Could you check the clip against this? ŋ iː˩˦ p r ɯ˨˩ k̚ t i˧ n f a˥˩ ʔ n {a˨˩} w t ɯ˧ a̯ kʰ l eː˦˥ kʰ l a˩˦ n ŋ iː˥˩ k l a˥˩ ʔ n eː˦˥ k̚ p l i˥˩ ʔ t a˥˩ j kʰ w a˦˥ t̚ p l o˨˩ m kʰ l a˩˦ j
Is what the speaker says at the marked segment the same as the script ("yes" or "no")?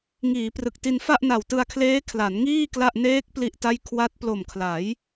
yes